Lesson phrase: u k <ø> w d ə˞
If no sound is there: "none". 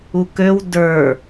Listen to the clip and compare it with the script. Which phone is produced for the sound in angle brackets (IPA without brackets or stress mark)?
ø